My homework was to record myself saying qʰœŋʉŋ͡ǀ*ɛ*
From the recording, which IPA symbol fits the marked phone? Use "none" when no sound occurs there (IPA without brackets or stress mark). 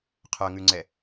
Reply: ɛ